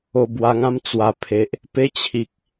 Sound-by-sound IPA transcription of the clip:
o˧ b w a˧ ŋ ã˦ m t͡s w a˨˩ pʰ e˨ ʔ | p e˦ t͡ɕʰ i˨ k̚

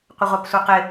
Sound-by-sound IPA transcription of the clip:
qʷ ə ʁʷ ɑ p sʷ œ q ɪ

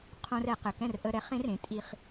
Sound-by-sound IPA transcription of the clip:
qʰ õ˧ r ɛ˧˩˧ q ɘ˩˧˩ k ɛ̃˥˨ r ʔ ə˧ ɾ ɛ˩˥ χ ẽ˧˥ r ẽ˩˥ tʼ i˧ χ

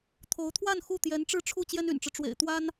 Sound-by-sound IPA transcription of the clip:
t̪ʰ o˧˥ ʊ̯ t̪ʰ w a˥˧ n x u˥˩ t̪ j ɛ˧˥ n ʈ͡ʂ ɻ̩˥˧ ʈ͡ʂʰ u˥˩ t͡ɕ j ɛ˥ n y̰˨˩ n ʈ͡ʂ ɻ̩˦ ʈ͡ʂ w ḛ˨˩ ɪ̯ t̪ w a˥ n

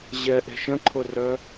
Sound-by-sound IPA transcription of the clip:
ʑ ɛ ʔ e̤ ʃ ə̃ ǃʰ ʊ r œ

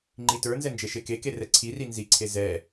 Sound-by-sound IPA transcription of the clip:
ŋ͡ǃ i t ə˞ n z ɛ n d͡ʒ e ʃ e k e k e r ɛ ǀʰ i r i n z i ǀʰ e z ɛ

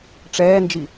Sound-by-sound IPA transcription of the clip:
ʈ͡ʂ ɛː n d͡ʒ i

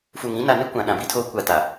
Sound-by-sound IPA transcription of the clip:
f u˨ ŋ ĩ˦ n a˨ n ɪ˦ kʷ ã˨ ɗ ã˨ b i˦ tʰ oː˦ kʷ a˨ t a˨

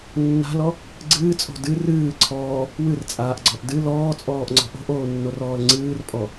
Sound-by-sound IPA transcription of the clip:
nː a̤ l ɔ | ɡ͡ǀ ɨː t͡sʼ o̤ d ɨ r ɨː ǀʰ ɔː | w ɨ r t͡sʼ aː ʔ ɡ͡ǀ ɔ ʔ d ɨ l ɔː t͡sʼ ɔː ʔ ŋ͡ǀ ɔ̤ ʔ o̤ ʔ oː nː o r ɔː l ŋ͡ǀ ɨː r pʼ ɔ

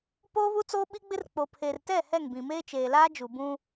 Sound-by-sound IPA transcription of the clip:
p oː˦ β u˦ t͡s oː˦ ɓ i˦ ɡ͡b ɪ˦ r k͡p o˨ pʰ eː˨ r t ɛ˦˨ h ɛ˦˨ ŋ b ĩ˨ m eː˦ t͡ʃ eː˨ l aː˦ d͡ʒ u˨ b ũ˦

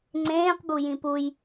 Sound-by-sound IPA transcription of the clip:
ŋ͡ǀ ẽː q b u j ĩ p u j

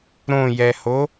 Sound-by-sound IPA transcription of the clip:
ɾ õ j ɛ h o

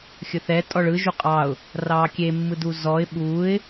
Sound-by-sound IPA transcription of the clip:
xʲ ɵ θ ɛ tʼ ɔ ɭ ɯ ʒ u qʼ ɑ ʊ̯ | r ɑː kʲ e mː ɯ d u z ɔ ɪ̯ ɓ uː ɪ̯

